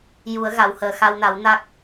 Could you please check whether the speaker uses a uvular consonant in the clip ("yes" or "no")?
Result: no